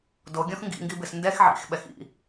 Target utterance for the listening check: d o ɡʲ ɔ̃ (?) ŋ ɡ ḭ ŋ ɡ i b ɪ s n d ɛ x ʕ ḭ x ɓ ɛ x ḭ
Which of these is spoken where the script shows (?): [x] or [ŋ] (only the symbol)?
x